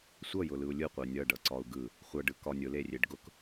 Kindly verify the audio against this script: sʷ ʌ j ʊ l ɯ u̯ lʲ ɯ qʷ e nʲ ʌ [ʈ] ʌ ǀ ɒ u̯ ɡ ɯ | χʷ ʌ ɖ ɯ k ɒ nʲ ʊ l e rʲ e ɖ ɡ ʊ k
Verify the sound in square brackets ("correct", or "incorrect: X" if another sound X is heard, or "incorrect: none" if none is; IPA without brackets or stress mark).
incorrect: ɖ